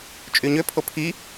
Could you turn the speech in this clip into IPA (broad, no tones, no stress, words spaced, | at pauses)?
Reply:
t͡ʃʼyɲø pʰopʰi